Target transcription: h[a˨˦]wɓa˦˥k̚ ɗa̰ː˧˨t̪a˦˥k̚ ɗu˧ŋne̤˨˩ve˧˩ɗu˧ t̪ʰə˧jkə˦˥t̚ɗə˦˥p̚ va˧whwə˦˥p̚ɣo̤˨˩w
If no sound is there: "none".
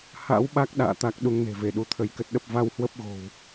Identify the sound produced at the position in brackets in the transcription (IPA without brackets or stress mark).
a̰˧˥